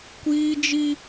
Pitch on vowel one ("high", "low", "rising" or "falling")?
high